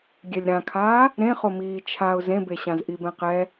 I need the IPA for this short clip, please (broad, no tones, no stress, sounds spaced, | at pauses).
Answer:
ɡʲ ɛ lʲ ɾ ã kʰ aː | ɾ ẽ χ o m iː t͡ʃʰ a ʊ̯ z ẽ b e ɕ ã z ʔ i b ɛ̃ q ɛ